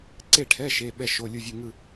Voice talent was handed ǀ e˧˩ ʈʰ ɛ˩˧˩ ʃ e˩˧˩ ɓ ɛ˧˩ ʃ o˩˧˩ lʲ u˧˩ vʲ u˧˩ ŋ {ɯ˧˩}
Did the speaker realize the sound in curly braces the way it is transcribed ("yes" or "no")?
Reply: yes